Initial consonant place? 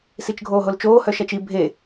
alveolar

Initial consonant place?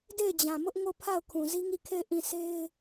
alveolar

